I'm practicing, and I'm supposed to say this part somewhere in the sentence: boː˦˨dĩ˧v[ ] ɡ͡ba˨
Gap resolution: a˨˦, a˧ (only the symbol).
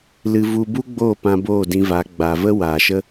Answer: a˨˦